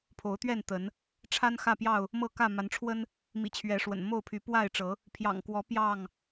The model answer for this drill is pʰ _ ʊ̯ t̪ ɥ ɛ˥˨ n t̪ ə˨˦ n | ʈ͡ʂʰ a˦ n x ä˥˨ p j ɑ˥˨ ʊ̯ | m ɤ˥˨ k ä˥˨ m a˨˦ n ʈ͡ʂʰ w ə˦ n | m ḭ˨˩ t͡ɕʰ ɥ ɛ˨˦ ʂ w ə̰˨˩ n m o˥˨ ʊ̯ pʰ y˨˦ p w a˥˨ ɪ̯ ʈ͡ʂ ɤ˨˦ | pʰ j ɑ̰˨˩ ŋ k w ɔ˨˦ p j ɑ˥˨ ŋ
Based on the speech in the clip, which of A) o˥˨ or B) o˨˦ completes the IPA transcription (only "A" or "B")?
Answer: B